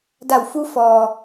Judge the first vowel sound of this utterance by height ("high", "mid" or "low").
low